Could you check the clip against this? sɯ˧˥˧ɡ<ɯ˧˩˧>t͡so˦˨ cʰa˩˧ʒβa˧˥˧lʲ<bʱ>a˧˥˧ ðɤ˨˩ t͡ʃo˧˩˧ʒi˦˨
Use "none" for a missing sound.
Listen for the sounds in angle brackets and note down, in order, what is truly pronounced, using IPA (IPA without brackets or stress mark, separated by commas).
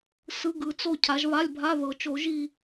ɯ˨˩, bʱ